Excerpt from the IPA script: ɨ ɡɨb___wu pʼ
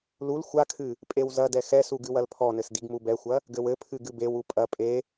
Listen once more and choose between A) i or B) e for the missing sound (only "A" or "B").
B